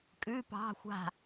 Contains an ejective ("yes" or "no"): yes